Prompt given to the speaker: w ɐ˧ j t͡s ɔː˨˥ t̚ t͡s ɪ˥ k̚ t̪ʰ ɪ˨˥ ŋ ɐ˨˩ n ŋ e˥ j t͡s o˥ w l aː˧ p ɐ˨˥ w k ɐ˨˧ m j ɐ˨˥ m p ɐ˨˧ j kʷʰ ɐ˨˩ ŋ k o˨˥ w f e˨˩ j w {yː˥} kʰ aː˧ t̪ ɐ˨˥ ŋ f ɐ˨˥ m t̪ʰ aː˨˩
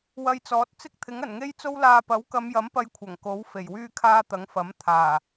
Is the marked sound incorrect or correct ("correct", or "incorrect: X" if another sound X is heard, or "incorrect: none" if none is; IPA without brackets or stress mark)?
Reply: incorrect: yː˧